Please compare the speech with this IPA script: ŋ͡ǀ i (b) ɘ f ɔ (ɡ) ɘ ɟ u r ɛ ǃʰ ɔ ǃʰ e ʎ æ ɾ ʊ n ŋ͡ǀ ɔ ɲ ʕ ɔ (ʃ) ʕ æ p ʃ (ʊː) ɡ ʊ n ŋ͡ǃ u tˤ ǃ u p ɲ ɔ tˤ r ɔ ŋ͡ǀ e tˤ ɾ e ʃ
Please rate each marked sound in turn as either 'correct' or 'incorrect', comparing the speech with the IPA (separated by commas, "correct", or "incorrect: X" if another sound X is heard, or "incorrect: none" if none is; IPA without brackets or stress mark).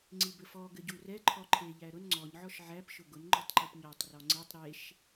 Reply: correct, correct, correct, incorrect: ʊ